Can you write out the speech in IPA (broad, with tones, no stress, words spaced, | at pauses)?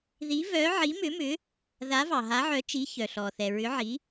ði˨˦vœ˨˦ ʕi˨˦mʏ˨˦mʏ˨˦ | ða˨˦vɑ˩ɦa˨˦ʕœ˨˦ t͡ʃi˨˦çœ˩ɬɔ˩θɛ˩ ɹʏ˨˦ʕi˨˦